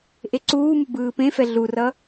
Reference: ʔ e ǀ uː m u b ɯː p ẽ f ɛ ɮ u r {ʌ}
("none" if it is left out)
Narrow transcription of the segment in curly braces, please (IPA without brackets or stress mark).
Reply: ʌ